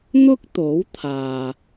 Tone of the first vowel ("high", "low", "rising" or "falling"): high